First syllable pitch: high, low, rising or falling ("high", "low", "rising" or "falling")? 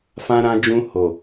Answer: high